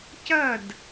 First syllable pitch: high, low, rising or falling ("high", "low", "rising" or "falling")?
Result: falling